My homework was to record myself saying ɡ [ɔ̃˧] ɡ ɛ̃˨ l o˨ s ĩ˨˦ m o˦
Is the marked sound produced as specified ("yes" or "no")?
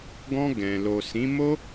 yes